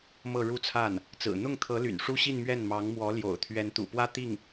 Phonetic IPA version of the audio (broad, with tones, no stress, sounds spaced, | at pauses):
m ɤ˥˧ ɻ u˥˧ t͡sʰ a˥˩ n | t͡s ɹ̩˨˩ n̪ ʊ˥˩ ŋ t̪ʰ ɤ˧˥ l y̰˨˩ n ʂ u˥ ɕ i˥˧ n m ɥ ɛ˥˩ n m ɑ˧˥ ŋ m w ɔ˧˥ l j o̰˨˩ ʊ̯ t̪ʰ ɥ ɛ˧˥ n t̪ ṵ˨˩ p w ä˥ t̪ i˥˩ ŋ